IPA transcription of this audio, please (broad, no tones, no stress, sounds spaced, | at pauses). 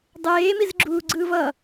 dˤ eː m i z ɡ͡ǁ uː ɡ͡ǀ ɯː v ʌ